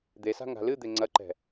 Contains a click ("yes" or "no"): yes